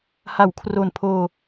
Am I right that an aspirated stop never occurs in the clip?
no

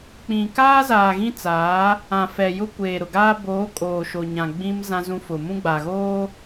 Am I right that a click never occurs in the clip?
yes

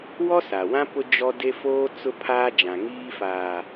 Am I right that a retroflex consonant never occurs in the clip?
yes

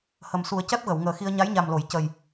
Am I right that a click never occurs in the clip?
yes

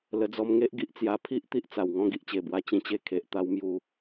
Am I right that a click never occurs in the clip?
yes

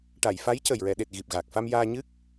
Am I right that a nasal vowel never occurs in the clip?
yes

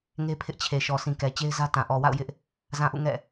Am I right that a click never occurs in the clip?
yes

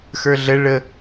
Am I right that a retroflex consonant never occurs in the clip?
no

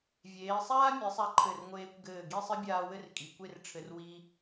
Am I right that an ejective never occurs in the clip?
no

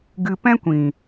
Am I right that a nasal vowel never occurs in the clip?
no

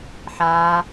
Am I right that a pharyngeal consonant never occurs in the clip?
no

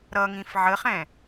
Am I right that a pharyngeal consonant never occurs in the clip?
no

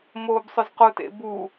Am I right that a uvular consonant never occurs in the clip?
no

